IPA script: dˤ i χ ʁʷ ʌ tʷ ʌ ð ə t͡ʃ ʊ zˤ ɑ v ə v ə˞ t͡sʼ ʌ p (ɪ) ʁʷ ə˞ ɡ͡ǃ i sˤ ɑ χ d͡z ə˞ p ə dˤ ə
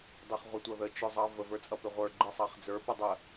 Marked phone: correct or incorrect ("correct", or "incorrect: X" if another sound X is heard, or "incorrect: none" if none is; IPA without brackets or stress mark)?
correct